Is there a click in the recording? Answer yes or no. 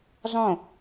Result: no